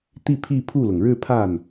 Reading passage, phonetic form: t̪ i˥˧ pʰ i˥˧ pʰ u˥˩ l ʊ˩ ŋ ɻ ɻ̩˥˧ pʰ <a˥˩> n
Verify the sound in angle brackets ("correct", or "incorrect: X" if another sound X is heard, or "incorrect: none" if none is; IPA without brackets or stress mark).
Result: correct